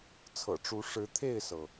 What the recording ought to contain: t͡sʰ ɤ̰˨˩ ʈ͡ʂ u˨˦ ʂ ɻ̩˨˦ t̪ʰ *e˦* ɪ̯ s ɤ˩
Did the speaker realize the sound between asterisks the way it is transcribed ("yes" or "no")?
no